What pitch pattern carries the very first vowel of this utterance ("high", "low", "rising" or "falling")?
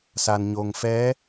low